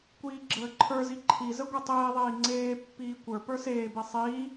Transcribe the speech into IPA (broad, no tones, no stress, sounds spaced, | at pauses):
kʷ iː ɡ͡ǁ əː ǃʰ ə˞ z i ǃʰ i z ə ɡʷ e tˤ iː ðˤ iː ŋ͡ǀ eː pː iː kʷ ə˞ p ə˞ s eː b i sˤ iː